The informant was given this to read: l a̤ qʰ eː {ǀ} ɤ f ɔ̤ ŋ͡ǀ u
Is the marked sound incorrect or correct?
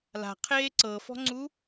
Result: correct